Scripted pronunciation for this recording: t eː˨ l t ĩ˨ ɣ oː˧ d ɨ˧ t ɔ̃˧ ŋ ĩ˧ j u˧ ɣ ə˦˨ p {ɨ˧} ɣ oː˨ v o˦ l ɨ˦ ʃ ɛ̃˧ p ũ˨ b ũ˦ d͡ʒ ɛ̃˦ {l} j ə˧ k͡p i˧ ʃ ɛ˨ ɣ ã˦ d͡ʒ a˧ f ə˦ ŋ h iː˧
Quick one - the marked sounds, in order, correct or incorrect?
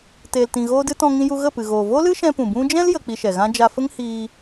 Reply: incorrect: ɨ˨, correct

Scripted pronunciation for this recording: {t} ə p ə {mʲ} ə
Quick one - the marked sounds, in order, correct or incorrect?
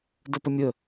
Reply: incorrect: d, correct

